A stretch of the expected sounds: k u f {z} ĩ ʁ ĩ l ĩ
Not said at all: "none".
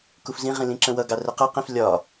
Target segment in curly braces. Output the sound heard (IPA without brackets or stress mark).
z